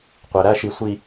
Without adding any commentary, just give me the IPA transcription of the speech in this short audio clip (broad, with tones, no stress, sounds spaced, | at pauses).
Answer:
qʷ e˨ ɾ æ˦ ʃ i˨ sʷ i˨